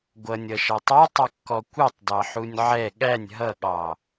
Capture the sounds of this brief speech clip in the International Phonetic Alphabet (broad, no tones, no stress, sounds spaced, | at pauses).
ɡʷ ʌ nʲ ʌ ʃ ɑ tˤ ɔ tˤ ʊ kː ɔ kʷ ʌ tˤ d ɑ ħ u nʲ ʕ ɛ ɠ æ nʲ ɦ ʌ ɠ ɑ